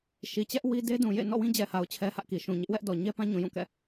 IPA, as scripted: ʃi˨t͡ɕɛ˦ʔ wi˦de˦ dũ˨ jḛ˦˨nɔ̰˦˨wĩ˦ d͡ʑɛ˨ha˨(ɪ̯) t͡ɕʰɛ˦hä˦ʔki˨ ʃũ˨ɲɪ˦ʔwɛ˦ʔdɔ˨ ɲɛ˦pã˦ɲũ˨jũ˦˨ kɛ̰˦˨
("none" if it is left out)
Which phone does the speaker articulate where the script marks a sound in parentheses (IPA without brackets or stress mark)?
ʊ̯